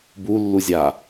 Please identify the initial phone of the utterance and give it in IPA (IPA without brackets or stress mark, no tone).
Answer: b